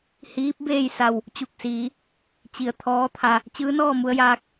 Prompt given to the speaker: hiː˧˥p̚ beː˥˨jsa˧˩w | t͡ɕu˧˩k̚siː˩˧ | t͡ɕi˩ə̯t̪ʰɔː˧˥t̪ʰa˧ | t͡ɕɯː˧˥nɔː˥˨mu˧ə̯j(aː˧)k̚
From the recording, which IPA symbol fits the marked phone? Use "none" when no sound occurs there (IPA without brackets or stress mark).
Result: aː˧